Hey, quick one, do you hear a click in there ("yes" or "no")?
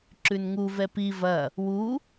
yes